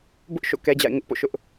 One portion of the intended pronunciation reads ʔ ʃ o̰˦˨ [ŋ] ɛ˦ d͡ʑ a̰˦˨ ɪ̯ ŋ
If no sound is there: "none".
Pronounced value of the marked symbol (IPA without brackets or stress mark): k